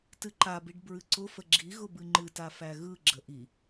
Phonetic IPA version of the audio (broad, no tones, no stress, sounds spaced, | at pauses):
t ɨ ǃ a b i ɖ b ɹ ɨ ǀ ʊ f ə ɡ͡ǁ i ɣ ʊ b ɨ ŋ͡ǃ ɨ t a f æ ɣ ɯ ɡ͡ǁ ə ʔ i